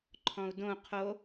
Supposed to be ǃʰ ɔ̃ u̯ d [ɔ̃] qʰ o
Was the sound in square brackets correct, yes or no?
no